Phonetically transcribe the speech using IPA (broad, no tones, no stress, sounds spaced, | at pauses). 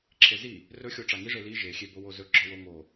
ǁʰ e z i | r ɵ xʲ o ʈ͡ʂ a ŋ i ʐ e l i ʒ e xʲ e b o w o z ɵ ɡ͡ǁ ɔ w o ŋ o